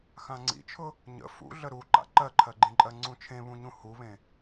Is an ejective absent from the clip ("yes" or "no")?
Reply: no